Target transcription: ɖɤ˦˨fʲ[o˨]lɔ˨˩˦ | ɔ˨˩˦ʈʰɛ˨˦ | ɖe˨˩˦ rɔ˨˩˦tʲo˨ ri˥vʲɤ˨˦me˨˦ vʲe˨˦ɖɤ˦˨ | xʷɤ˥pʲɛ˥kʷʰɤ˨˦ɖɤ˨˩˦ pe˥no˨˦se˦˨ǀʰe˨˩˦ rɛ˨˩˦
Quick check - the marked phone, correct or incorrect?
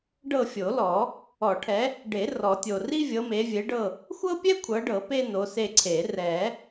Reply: incorrect: o˨˩˦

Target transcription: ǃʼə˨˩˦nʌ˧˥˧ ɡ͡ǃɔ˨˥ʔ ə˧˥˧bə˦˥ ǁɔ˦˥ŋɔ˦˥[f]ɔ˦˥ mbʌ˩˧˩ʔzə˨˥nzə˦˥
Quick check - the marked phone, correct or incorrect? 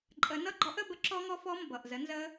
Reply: correct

